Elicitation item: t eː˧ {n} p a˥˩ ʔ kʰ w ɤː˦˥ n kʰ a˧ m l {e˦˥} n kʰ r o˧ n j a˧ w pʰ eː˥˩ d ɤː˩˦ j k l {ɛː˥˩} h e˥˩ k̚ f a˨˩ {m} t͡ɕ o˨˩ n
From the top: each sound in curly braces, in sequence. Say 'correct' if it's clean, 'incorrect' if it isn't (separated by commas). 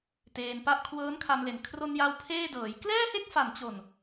correct, incorrect, correct, incorrect